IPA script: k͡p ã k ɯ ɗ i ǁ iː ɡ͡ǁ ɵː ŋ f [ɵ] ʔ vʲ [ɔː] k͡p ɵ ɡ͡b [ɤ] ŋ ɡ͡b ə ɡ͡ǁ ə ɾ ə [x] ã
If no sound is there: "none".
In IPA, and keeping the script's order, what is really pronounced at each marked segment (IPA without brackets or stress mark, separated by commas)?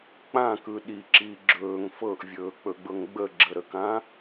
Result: ɤ, ɵː, ɤ, k